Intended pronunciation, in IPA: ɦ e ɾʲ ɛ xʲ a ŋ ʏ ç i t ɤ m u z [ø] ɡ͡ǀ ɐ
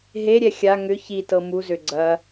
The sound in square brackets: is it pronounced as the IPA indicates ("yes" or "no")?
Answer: yes